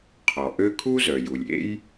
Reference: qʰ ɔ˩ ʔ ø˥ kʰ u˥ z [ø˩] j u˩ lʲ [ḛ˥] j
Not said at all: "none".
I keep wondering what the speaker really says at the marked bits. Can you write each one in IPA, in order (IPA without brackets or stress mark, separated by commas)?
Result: œ˩, ḛ˥